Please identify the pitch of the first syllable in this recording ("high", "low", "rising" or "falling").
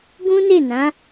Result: high